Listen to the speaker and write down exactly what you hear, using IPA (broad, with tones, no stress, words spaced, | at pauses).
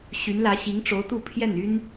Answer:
ɕy˧˥nlä˧˥ɕi˧˥ŋ ʈ͡ʂo˧˥ʊ̯t̪u˥˧ pʰjɛ˥˩ny˥n